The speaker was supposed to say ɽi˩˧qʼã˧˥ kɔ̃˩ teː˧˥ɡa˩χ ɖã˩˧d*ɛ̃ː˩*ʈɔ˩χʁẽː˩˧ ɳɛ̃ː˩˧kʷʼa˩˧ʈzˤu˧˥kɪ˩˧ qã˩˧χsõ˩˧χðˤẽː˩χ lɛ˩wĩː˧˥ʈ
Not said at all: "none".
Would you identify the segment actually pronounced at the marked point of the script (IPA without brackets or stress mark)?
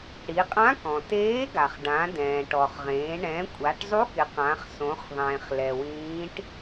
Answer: ɛ̃ː˩